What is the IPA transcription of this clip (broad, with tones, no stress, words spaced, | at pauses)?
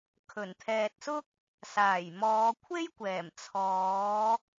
kʰɵ˨˩nt̪ʰɛː˨t̚sʊ˥k̚ | saː˨˩jmɔː˨˧kʷʰe˥jkʷɛː˨˩m t͡sʰɔː˨˧